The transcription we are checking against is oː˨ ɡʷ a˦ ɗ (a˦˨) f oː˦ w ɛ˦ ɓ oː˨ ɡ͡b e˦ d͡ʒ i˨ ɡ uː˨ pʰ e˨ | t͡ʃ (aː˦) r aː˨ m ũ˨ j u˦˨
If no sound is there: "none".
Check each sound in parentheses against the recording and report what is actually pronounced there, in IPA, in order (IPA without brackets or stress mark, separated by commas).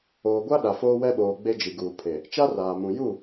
a˨, a˦